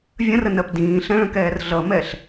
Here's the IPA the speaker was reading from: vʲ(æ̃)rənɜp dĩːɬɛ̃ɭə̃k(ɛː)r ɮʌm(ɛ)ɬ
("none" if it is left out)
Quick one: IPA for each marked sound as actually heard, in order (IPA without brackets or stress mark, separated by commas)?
ə̃, ɛː, ɛ